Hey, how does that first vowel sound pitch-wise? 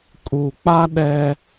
low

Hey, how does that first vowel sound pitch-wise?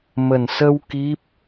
low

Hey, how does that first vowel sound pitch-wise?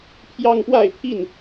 high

